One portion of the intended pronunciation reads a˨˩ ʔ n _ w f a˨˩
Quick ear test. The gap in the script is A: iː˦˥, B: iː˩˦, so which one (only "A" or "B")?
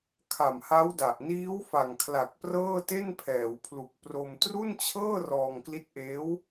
A